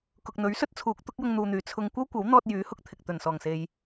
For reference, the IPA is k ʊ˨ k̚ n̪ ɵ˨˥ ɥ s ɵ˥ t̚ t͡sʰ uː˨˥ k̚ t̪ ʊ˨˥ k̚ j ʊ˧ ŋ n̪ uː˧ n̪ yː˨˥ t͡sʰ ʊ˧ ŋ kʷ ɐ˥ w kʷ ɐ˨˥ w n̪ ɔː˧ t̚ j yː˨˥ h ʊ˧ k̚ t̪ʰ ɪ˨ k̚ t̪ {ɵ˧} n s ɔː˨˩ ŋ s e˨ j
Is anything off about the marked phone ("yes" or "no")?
yes